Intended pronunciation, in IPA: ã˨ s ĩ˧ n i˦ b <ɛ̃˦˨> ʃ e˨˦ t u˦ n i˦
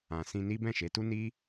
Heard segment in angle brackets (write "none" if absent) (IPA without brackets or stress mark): ɛ̃˦˨